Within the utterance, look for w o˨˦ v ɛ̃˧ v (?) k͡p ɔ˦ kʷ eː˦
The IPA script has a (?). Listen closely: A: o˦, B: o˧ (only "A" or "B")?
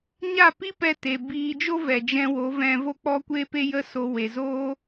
A